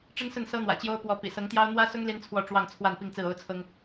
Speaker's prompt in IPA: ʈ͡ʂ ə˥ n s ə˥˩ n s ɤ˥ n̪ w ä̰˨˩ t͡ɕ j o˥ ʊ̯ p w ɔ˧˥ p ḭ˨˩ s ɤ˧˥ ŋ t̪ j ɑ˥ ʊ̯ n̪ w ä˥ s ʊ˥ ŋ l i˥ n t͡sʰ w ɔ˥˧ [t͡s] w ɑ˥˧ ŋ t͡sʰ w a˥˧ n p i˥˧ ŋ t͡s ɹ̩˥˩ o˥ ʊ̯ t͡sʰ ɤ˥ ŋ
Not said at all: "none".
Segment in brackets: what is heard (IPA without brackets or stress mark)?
ʈ͡ʂ